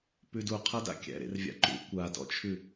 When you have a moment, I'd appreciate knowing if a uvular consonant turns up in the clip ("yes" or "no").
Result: yes